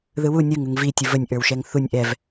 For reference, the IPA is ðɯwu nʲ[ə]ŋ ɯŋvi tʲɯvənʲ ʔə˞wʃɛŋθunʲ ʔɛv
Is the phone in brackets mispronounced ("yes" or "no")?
yes